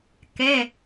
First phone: k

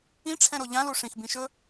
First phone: ĩ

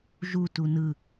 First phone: ʒ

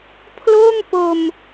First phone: pʰ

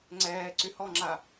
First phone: ŋ͡ǀ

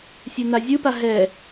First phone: sʲ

